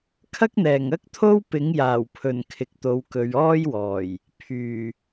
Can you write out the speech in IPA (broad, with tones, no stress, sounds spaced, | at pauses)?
kʰ ɐ˥ k̚ n̪ ɛː˨˩ ŋ ɐ˥ k̚ t̪ʰ o˥ w p ɪ˨˥ ŋ j aː˨˩ w pʰ ɵ˨˩ n kʰ ɪ˨ k̚ t̪ o˨˧ w k ɵ˨˧ ɥ ɔː˥ j w ɔː˨˩ j | pʰ yː˨˩